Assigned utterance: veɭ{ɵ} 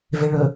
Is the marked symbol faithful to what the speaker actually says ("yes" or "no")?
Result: yes